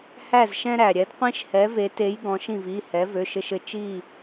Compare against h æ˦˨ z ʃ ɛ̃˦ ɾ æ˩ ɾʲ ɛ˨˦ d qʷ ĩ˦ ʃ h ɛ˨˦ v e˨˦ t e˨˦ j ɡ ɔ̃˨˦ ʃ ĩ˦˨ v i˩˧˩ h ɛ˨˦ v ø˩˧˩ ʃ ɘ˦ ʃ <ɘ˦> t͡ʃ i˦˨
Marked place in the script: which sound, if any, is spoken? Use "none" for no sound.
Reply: ɘ˦˨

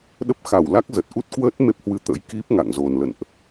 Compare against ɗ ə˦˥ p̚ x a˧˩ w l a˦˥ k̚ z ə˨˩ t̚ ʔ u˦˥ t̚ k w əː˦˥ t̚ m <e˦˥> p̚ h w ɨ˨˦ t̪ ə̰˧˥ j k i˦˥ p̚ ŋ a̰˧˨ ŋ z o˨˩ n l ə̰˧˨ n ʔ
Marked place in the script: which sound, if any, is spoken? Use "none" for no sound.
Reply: e˦˥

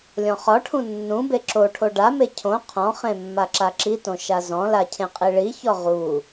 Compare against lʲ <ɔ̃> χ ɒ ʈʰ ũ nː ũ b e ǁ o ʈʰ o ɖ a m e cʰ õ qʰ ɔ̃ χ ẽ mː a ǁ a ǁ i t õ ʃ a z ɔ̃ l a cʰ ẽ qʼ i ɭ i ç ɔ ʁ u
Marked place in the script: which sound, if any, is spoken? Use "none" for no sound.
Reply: ɔ̃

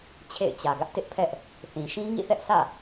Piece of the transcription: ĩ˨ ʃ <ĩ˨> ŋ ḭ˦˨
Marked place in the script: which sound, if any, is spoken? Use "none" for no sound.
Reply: ĩ˦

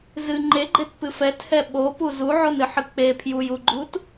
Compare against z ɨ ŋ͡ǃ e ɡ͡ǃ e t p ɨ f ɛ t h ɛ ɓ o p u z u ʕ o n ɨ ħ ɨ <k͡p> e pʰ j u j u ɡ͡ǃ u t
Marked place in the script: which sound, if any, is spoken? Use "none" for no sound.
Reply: k͡p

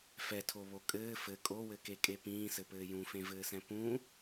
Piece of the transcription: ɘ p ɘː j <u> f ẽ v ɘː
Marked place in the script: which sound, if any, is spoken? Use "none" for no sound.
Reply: ũ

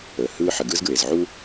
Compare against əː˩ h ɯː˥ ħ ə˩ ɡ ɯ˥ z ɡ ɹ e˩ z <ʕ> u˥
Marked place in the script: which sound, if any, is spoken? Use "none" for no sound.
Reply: ʕ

